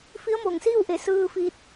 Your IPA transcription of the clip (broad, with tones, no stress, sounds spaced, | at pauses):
f i˧˥ ə̯ m oː˧˩ ŋ s iː˥˨ w ʔ e˧˩ s ɯː˧ f iː˧ t̚